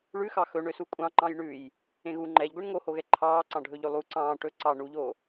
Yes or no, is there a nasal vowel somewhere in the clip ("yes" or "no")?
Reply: yes